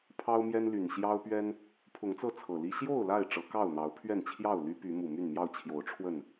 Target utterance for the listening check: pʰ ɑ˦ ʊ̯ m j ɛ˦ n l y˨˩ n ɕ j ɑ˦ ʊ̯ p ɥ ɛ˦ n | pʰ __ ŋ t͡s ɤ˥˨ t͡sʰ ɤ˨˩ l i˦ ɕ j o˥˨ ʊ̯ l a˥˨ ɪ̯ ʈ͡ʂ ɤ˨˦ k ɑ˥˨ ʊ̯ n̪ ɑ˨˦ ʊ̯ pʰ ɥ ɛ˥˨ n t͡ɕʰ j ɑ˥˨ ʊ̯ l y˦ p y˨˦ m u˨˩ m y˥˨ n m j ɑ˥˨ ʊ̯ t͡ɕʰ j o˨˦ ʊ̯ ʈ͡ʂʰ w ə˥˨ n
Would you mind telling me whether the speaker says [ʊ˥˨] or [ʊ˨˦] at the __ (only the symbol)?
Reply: ʊ˨˦